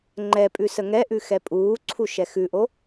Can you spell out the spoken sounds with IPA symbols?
ŋ͡ǃ ɛ pʼ ʉ s ə ŋ ɛ ʔ ʉ x ɛ pʼ uː ǀʰ u ʃ ɛ x ʉ ʔ o

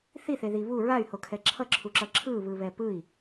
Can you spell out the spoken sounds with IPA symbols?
θ i θ e ð i β u ɹ a y̯ h o kʰ ɛ ǁʰ ʌ ǁʰ u ǁ ʌ ǁʰ ɯ β ɯ β ɛ p ɯ i̯

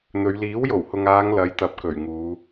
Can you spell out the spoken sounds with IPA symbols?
n̪ ɵ˨˧ ɥ l iː˨˥ w j o˨˩ w h ʊ˨ ŋ aː˨˧ ŋ l ɐ˨˥ j t̪ ɐ˨ p̚ k ɵ˨˩ ɥ ŋ uː˨˧

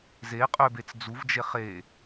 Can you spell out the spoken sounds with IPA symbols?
z e qʼ ø b e t͡s d͡z u v d͡ʒ e χ e

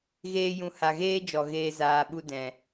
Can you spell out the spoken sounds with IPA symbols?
ɣ eː˧ j ũ˨ h a˨ ɣ eː˦ d͡ʒ ɔ˨ ɣ eː˧ z aː˨ ɓ u˧ d ɛ̃˨

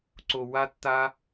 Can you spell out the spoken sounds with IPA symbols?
ǀ o˨ w a˦ tː a˦

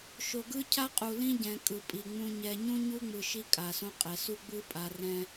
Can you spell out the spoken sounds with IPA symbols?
ʃ o˨ ɡ ɯ˦ cʰ a˦ qʼ u˨ l ĩ˦ ɟ ɛ̃˨ kʼ ɯ˨ pʼ i˨ ŋ͡m ũ˦ ɲ ɛ˨ ɲ ũ˦ ɲ u˦ ŋ͡m ɯ˨ ʃ i˦ kʼ a˨ s õ˦ qʼ ɛ˨ s u˦ ɡ͡b ɯ˦ pʼ a˨ r ɛ̃˦

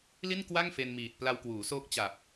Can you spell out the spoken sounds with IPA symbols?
l i˥˩ n k w a˥˩ ŋ f e˧ n m iː˨˩ t̚ p l a˧ w k w uː˩˦ s oː˦˥ k̚ t͡ɕ a˨˩ p̚

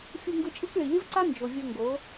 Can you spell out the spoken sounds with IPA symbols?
fʲ u˧ ŋ ɡ ɯ˧ t͡ʃʼ ɯ˦ k ɭ i˨ lʲ ɯ˦ v ǀ a˦ n d͡ʒ o˨ vʲ ɤ˧ ŋ ɡ o˨˦

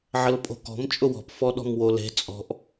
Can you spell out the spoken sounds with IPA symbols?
ʕ ə l pʼ o̤ k ɔ̤ m t͡ʃʼ ʊ w ɔ̤ p f ɔ ɗ ɔ̤ m w o l e̤ t͡sʼ ɔ̤ ʔ

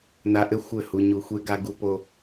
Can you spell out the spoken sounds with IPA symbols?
n a˧ ʔ ɘ˦ xʷ ɘ˦˨ h u˧ ɲ u˧ xʷ e˦ ɡ a˦ ɡ u˦ p o˦

